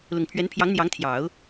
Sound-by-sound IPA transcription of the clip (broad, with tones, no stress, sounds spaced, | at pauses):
l ʊ˨˩ ŋ pʰ ɥ ɛ˧˥ n pʰ j ɑ˧˥ ŋ n̪ j ɑ˧˥ ŋ t̪ʰ j ɑ˨˩˦ ʊ̯